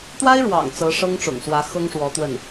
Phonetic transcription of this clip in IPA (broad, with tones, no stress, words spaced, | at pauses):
t̪wa˥ɪ̯ɻwɑ̰˨˩ŋ t͡sɤ˧˥ʂɤ˥ŋʈ͡ʂʊ̰˨˩ŋswä˧˥ xɤ˥ŋʂwɔ˧˥t̪wə˥˩n